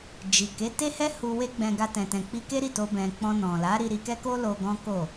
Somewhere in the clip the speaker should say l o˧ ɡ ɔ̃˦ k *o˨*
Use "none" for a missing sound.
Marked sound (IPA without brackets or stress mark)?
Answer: o˦˨